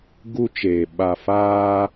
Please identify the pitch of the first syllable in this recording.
high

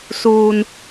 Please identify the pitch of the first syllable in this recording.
low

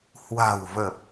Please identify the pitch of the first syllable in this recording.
low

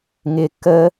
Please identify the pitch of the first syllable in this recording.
high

